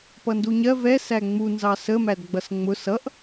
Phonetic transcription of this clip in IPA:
p ʌ n d u ɲ ɜ v ɛ s æ ŋ͡m u n z ɑ s ə m æ d ɡ͡b ʌ s ŋ͡m ʊ s ʌ ʔ

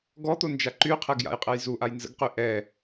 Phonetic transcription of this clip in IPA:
ɡ ɔ t̪ o n d͡ʒ a ǃ y qʰ ɛ ɡ j a̰ j qʼ ɛ j z u ʔ a j n z ə̰ ɡ q y ʔ ɛ

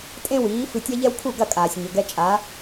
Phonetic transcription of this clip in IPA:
tʼ ẽ˥ w iː˩˥ f ɨ˧ tʲ a˥ ʎ ɛ˥ w kʰ u˥˩ ɡ ɐ˥˩ kʼ aː˩ sʲ ɲ ɘ˩ ɡ ɛ˧ t͡ʃʼ a˩˥

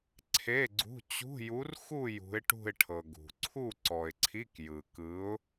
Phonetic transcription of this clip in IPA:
ǀʰ e˧˥˧ ɡ͡ǀ ṳ˧˥˧ t͡ɕ ṳ˧˥˧ j u˧˥ r x u˥˧ j ṳ˧˥ ɪ̯ ʈ ṳ˥˧ ɪ̯ ʈʰ ɤ˨ ɡ ṳ˨ ǀʰ u˥˧ ǀ ɔ˨ ɪ̯ ǀʰ i˧˥˧ k j ɯ˨ k ɯ˧˥ ʊ̯

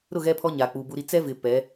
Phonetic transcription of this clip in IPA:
ɾ ʊ˦˨ ɣ ɛ˦ pʰ ɔ˦ ɲ a˨ k͡p u˨ b u˦ ɾ i˦ t͡s ɛ˦ v ɪ˨ p ɛ˨˦

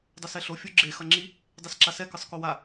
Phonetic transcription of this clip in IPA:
dˤ ʌ s ɛ ɬ o fʲ u ɡ͡ǁ e x ʌ ŋ͡ǁ i | dˤ e s ǁ a s ɛ k ɯ sˤ k o w a

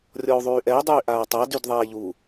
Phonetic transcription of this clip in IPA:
rʲ ɔ u̯ ðˤ yː ʔ ɛ y̯ dˤ yː ʔ aː tˤ a d y d ðˤ ɛː ʎ u

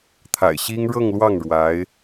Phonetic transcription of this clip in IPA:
t̪ʰ a̰˨˩ ɪ̯ ɕ i˥ ŋ ɻ ɤ˥˧ ŋ l w ɑ˥˩ ŋ ɻ w a˧˥ ɪ̯

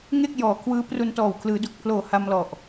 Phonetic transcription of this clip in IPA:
ŋ e˥˩ k̚ j ɔː˩˦ kʰ w ɯː˦˥ p r u˧ n t ɔː˨˩ w kʰ l ɯː˩˦ d u˨˩ k̚ pʰ l oː˨˩ h a˧ m l ɔ˨˩ ʔ

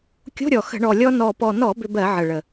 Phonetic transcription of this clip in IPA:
kʲ o̤˧˥˧ ɾʲ ɔ˨˩ x ə̤˧˩˧ ɳ ɔ˨˩ lʲ ɔ˧ n ɔ˨˩ p ɔ˨˩ n ɔ˧˩˧ b ʏ˧ b ɜ˧˩˧ ʕ ə˨˩ ɭ ə˨˩

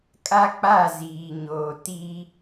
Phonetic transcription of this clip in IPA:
kʼ a˦ k͡p a˦˨ z iː˨ ɲ oː˨ t i˦

